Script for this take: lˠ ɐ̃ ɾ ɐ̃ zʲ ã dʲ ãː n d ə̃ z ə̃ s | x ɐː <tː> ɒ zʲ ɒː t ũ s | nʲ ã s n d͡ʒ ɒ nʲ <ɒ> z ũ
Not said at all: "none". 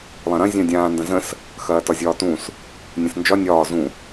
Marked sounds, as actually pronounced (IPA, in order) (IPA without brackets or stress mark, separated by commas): t, ɒː